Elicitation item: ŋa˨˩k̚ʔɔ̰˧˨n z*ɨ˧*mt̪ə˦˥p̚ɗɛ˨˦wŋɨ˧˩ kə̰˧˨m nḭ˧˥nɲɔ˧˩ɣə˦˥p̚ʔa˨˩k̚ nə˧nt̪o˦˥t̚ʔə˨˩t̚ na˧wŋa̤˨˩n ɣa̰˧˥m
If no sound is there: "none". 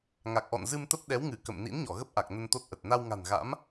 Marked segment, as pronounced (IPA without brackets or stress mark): ɨ˧